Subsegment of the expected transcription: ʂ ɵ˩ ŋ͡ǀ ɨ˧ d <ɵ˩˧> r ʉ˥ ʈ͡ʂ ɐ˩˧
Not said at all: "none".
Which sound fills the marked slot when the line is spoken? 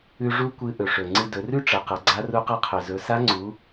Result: ɵ˩˧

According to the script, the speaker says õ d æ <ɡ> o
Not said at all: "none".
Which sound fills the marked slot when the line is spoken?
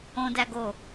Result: ɡ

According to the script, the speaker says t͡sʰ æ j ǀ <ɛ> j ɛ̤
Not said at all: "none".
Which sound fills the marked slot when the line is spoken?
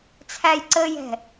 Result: ə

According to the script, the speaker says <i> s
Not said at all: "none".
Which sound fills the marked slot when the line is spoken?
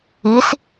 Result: i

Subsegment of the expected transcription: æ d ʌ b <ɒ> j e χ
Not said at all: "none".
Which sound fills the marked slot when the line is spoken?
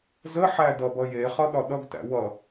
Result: ʌ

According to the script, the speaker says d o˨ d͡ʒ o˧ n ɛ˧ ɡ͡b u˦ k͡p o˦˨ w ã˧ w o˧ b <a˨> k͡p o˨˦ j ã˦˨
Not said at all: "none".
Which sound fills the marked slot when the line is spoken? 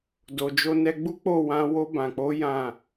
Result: ã˨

